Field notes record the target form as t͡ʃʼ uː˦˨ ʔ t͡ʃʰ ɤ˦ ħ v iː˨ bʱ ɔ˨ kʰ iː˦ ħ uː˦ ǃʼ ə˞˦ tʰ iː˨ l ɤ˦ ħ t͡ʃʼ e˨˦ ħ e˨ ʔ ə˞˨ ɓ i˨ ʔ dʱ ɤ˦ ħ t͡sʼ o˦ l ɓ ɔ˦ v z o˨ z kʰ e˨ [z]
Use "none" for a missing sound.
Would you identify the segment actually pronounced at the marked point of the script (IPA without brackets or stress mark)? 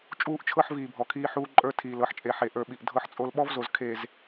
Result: z